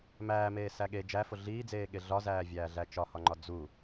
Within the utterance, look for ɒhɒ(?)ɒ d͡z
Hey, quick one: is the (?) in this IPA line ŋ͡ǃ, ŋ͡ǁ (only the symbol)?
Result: ŋ͡ǃ